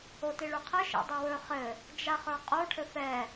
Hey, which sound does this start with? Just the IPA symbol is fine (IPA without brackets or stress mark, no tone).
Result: o